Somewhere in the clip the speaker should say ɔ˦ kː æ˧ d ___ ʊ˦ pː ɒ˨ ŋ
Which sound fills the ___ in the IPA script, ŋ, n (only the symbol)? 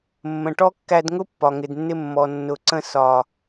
ŋ